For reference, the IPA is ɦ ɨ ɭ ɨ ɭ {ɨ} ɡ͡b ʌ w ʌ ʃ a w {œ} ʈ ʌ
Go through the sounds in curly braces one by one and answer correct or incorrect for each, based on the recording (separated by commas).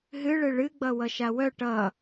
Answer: correct, correct